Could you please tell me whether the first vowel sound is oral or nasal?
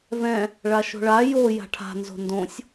nasal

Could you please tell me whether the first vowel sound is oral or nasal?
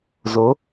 oral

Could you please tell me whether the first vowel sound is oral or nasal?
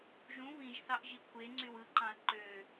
nasal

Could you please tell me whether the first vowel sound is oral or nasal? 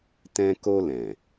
nasal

